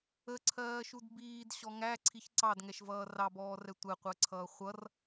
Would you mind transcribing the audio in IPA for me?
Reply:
ə ǀʰ ɜː ʃ u d b iː d ɕ ɔ ŋ æ ǀʰ i ç ǀ ɑ d ŋ ɛ ʃ v ʌː r ɑ b ɔː r ɛ tʷ ɛ qʷ əː ǀʰ ʌː χʷ ʌ r

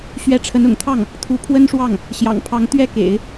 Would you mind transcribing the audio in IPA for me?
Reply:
ɕ ɥ ɛ˧˥ ʈ͡ʂʰ ə˧˥ n ʊ̰˨˩ ŋ t̪ʰ ɑ˥˩ ŋ | t̪ʰ u˧˥ pʰ w ə˥ n ʂ w ɑ˥˩ ŋ | ɕ j ɑ̰˨˩ ŋ pʰ ɑ˧˥ ŋ t̪ ɥ ɛ˥ k ḛ˨˩˦ ɪ̯

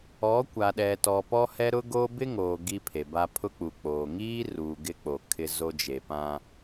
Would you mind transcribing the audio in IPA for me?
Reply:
ɔ˨˦ kʷ a˨ ɗ ɛ˨ t ɔ˨ p ɔ˦ h ɛ˦ ɾ ʊ˦ ɡ o˦ b ɪ˦ ŋ oː˨ ɡ i˦ pʰ e˨ b a˦ pʰ ʊ˦ k͡p u˨ k͡p oː˨ ŋ iː˦ r uː˨ ɡ ɪ˦ k͡p o˨ kʰ ɪ˦ z o˦ d͡ʒ e˨ p ã˦

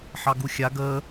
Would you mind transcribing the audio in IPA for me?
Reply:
ħ ɑ ɡ u xʲ a ɡ əː

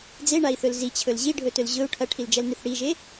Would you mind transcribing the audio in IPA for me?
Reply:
d͡z e ɳ a i̯ θ ɵ l z i t͡ɕʰ ɵ l ʑ i ɖʱ ɵ t ɵ l ʑ ɵ u̯ ʈʰ ɐ ʈʰ i l d͡ʒ ɐ l n ɨ θ ɽ i ʒ e

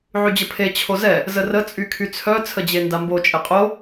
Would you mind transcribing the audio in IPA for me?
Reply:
ʕ y d͡ʑ ə pʰ e t͡ɕʰ o z ɛ | z ə r ə t͡sʼ y kʰ y t͡sʰ œ t͡sʰ ə d͡ʑ e n d a m b o t͡ʃʼ e qʼ o

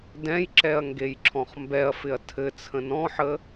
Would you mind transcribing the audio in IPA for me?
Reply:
d ɛ̃ j ǁ ɛ ɐ̯ ŋ ɡ e j ǁʰ ɔ̃ χ m b ɛ ɐ̯ f ɪ ɐ̯ tʰ ɘ t͡sʰ ə̃ n ɔ̃ ħ ə

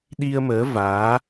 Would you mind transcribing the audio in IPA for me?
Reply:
ɗ i˧ ə̯ m əː˨˦ v aː˨˦

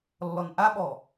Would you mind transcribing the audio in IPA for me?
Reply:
lː ɔ n ʔ a ɓ ɔ

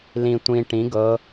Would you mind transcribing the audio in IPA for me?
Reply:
l ĩ tʷ ĩ ʈ ĩ ɡ ɤ

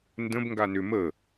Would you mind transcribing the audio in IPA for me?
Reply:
n d ə̃ b ŋ ɡ a n ʏ m ə

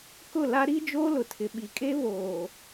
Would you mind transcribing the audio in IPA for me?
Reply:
k ʊ˦˨ l a˦ ɾ i˦ d͡ʒ oː˦ l ʊ˨ tʰ ɪ˨ ɓ i˨ kʼ e˦ β oː˨

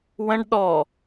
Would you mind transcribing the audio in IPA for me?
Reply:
w ə̃ ɖ ɗ ɔ

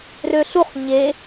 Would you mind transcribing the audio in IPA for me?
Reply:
r ø ɬ u χ ɲ e

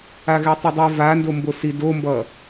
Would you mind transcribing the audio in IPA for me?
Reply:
a ɣ ɛ tˤ ʌ dˤ i v a n d o m b o s i d o m b ʌ

